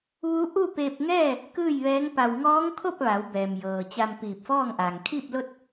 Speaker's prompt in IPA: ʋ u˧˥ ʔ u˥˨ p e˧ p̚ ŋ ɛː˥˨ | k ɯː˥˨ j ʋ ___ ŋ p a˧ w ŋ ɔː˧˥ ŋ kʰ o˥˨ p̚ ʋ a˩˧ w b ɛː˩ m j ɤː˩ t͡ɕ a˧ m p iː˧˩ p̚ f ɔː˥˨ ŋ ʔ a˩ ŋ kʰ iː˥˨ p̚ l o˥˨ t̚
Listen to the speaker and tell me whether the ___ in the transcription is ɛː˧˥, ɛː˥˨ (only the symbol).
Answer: ɛː˧˥